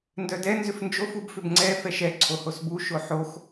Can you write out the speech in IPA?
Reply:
ndœdɛ nzʏfnd͡ʒof ubfʏbŋ͡ǀɛ fɛʃɛ ǀʰohosbu ʃoħox

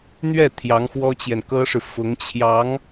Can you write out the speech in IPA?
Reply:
n̪ɥɛ˥˩ t̪ʰjɑ˧˥ŋxwɔ˥t͡ɕjɛ˨n kɤ˥ʂɻ̩˨ fʊ˧˥ŋ t͡ɕʰjɑ˧˥ŋ

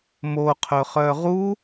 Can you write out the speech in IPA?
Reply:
moqʰɵχœ ʁu

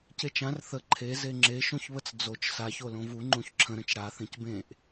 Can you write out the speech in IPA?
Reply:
cet͡ʃãr θə ǃʰe zeŋ͡ǁe ʃõçβət͡sd͡zot͡ʃ saç olõvu ŋ͡ǃũçǁʰə̃ ɾə̃t͡ʃɽa θẽcbẽʔ

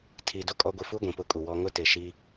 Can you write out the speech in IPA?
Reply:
tʰi˨ do˦kʼɔ˨˦ɡʷi˨fu˦ ɡʷĩ˨pʊ˦kʼu˨wɔ˦ ŋʊ˦tɪ˨ ʃi˦

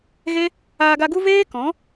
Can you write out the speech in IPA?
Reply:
ɣe˦ | aː˧ɡa˧ɡu˦ veː˦ kɔ̃˨˦

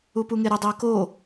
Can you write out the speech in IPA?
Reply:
upuŋeɾʊ dˤɛko

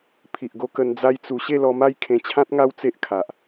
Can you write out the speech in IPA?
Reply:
pʰi˨ʔɡo˧kə˧n d͡za˦jt͡su˧ ɕe˥˧lɔ˧ma˥˧j kʰẽ˧t͡ɕʰã˦t̚ŋa˦w t͡se˦ʔkʰa˨ʔ

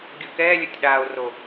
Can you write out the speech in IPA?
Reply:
ɡʲʊ kɛːlʲʊtʲ ɗaːo̯ro

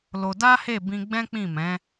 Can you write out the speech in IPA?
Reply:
lo˧ da˦he˦˨bĩ˧ ɡ͡bɛ̃˦k͡pĩ˦˨mɛ̃˨˦

